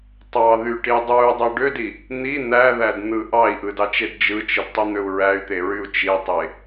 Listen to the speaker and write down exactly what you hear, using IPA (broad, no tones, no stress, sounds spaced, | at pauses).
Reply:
tˤ ɑ ð y ʈ i dˤ u y̯ dˤ ø ɖ ø d i | n̪ i n̪ æ ð æ d n̪ ɯ ʔ ɑ i̯ ʔ ɯ d ɑ t͡ʃ e d d͡ʒ ɯ t͡ʃ ɯ d tˤ i n̪ ø u̯ ɹ æ y̯ t̪ e ɹ y u̯ t͡ʃ i tˤ e